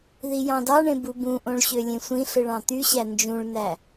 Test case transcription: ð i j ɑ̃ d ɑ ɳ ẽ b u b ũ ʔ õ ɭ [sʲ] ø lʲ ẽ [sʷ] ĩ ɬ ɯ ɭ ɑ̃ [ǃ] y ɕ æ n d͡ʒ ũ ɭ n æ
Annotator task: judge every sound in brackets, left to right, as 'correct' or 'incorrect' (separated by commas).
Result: incorrect, correct, incorrect